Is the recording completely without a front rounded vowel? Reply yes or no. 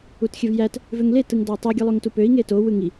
no